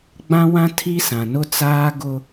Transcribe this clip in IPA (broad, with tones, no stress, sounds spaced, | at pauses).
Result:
ɡ͡b ã˦ w ã˦ tʰ i˦ s ã˨ n ʊ˦ t͡s aː˦ ɡ ʊ˦